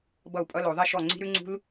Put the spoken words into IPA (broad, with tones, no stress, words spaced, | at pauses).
bʌ˥˩u̯pʼʌ˦˥lo˨˩˦ðˤi˦˥ ʃɔ˧˩ ŋ͡ǀi̤˦˥ɾʉ˦˥ŋ͡ǀṳ˦˥l